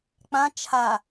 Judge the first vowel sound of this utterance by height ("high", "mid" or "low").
low